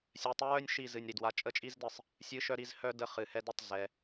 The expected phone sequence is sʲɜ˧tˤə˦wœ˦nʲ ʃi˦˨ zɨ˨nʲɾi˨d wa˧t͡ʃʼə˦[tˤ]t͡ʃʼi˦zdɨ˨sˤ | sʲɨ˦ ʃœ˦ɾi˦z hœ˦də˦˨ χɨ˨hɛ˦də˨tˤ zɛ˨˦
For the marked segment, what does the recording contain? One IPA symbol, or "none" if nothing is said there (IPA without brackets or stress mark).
none